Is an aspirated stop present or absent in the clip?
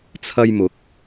present